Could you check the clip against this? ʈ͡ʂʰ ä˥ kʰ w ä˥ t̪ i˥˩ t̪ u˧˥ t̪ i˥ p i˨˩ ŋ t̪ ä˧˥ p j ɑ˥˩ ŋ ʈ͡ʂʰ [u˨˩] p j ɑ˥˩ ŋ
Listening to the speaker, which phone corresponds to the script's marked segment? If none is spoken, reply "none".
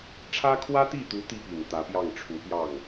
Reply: u˧˥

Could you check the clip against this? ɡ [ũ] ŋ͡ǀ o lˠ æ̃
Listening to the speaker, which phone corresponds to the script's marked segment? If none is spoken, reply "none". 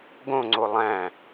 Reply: õ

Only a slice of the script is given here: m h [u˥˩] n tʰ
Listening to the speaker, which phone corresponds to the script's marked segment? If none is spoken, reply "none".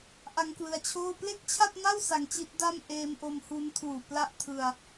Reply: u˦˥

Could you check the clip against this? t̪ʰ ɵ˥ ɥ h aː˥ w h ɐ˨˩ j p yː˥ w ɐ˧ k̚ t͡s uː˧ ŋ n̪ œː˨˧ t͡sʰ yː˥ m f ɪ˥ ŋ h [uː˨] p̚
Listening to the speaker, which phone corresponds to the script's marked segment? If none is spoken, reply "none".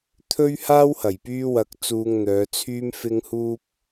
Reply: uː˥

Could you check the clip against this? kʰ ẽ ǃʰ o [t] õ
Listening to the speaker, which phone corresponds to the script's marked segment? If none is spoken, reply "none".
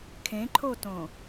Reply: t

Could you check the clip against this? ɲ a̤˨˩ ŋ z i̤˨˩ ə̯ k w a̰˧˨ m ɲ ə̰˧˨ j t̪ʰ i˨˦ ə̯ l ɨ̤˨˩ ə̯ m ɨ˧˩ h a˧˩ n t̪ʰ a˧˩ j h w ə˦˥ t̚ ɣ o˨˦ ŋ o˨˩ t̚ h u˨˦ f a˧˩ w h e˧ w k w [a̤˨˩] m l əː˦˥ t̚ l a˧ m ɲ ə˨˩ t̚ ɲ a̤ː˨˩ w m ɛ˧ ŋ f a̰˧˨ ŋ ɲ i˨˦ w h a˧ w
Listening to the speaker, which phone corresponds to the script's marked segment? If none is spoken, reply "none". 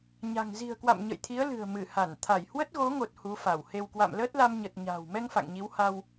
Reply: a̰˧˨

